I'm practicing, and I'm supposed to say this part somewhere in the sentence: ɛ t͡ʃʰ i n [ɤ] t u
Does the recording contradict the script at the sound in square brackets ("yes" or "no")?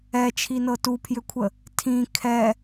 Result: no